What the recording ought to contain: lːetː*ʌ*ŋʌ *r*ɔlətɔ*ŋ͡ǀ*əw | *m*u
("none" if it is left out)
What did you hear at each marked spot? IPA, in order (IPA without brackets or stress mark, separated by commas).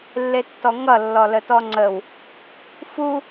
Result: ɔ, lː, ŋ͡ǀ, f